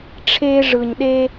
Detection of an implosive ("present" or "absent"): present